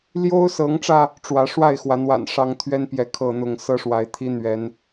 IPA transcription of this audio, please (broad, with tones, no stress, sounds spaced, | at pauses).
l j o˦ ʊ̯ s ɤ˨˦ ŋ ʈ͡ʂ ä˧ | ʈ͡ʂ w ä˨˦ ʂ w a˥˨ ɪ̯ x w a˨˦ n w a̰˨˩ n ʂ ɑ˦ ŋ t̪ʰ ɥ ɛ˦ n p j ɛ˨˦ kʰ ɤ˥˨ n̪ ʊ˥˨ ŋ s ɤ˦ ʂ w a˨˦ ɪ̯ t̪ʰ i˦ n̪ ɥ ɛ˨˦ n